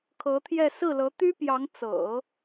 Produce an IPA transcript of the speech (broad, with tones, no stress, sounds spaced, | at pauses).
kʰ ɤ˧˥ t̪ʰ j ɛ˥˧ s ɹ̩˥˩ l ɤ˧˥ t̪ y˥ p j ɑ˧˥ ŋ t͡s ɤ̰˨˩˦